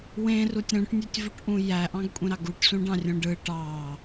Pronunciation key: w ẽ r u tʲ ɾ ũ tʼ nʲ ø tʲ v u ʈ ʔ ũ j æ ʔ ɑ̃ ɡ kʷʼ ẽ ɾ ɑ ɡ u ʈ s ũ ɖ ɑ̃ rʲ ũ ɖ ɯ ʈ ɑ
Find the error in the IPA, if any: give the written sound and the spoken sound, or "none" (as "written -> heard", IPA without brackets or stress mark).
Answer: tʼ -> ʈ